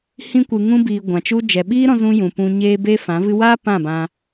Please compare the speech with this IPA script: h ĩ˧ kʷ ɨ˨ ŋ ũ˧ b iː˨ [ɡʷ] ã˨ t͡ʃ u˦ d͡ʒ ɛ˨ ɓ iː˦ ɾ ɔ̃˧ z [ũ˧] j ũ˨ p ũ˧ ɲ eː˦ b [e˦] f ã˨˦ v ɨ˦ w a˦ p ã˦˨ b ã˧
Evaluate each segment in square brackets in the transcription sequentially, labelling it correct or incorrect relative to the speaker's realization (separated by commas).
correct, correct, correct